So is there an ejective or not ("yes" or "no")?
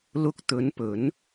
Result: no